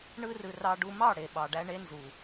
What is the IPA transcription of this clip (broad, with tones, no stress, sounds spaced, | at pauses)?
ɳ ɯ˦ r ɯ˧ r ɑ˧ ɖ u˧ m ɑ˦˨ ɽ e˨ ɓ ɑ˨ ɖ æ˧ ɳ e˧ n z u˨